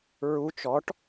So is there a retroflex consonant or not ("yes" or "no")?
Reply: yes